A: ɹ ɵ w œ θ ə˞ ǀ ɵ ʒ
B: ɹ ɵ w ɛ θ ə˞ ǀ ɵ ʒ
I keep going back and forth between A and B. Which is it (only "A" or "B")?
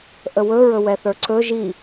B